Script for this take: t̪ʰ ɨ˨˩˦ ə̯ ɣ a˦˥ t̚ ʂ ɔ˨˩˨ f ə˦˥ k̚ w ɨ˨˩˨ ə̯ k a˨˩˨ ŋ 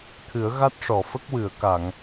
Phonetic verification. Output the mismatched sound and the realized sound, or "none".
none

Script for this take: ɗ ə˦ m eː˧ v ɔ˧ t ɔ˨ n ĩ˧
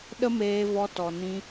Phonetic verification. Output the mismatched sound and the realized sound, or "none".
none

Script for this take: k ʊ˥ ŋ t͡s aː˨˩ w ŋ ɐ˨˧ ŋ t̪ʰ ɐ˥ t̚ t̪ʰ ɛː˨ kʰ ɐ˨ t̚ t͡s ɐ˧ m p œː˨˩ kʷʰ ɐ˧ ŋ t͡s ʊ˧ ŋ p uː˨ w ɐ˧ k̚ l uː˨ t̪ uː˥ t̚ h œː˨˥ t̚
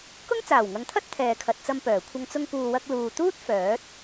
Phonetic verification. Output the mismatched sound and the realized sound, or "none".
h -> f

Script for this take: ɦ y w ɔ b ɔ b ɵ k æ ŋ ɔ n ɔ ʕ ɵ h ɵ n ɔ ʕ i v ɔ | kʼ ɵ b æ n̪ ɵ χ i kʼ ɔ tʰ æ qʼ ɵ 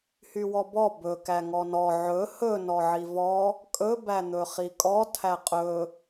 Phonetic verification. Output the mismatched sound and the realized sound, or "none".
ɦ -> h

